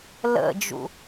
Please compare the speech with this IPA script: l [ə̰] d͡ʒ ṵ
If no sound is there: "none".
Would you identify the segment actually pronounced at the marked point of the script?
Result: ə̰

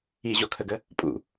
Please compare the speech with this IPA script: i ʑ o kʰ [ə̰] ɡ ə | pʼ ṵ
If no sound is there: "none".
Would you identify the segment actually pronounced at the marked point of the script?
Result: ə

